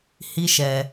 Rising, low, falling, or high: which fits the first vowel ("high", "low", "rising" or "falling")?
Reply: high